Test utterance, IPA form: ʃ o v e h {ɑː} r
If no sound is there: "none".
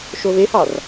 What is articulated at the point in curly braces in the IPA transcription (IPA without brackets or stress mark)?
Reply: ɑ